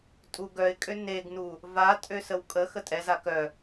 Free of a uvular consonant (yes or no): yes